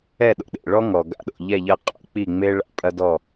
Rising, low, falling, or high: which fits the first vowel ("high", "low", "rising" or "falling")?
falling